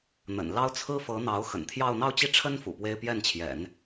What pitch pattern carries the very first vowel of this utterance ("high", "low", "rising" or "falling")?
low